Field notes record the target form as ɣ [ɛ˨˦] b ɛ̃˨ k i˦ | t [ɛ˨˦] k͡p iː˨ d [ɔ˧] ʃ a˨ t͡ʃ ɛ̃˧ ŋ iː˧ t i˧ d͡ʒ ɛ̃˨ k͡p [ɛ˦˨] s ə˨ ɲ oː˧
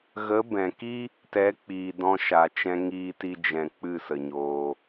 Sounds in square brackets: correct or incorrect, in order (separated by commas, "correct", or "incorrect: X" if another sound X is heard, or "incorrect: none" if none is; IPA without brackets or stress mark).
incorrect: ə˨˦, correct, incorrect: ɔ̃˧, incorrect: ɨ˦˨